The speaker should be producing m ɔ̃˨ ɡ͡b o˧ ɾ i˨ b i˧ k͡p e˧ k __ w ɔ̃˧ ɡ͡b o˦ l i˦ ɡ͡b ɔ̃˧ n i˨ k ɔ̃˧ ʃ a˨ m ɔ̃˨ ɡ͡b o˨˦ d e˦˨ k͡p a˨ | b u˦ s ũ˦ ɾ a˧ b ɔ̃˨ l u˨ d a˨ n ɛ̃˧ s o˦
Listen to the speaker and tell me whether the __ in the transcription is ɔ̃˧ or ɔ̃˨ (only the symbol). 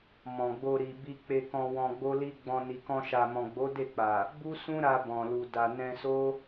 ɔ̃˧